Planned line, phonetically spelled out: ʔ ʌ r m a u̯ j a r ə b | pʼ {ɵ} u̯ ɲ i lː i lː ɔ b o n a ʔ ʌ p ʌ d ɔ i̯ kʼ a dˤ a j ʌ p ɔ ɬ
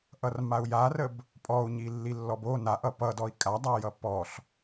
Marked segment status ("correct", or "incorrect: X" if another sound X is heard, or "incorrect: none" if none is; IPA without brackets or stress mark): incorrect: ɔ